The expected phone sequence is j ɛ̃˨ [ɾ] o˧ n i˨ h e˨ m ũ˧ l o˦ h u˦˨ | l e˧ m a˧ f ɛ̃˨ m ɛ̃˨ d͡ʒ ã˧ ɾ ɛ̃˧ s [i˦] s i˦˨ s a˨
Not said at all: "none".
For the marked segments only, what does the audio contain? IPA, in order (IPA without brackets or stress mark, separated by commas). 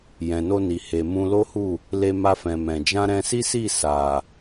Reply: n, i˦